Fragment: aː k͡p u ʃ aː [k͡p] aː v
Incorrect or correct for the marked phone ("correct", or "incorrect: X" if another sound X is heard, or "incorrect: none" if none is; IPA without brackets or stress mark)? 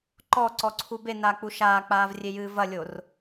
correct